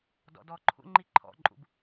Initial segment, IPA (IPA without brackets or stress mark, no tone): d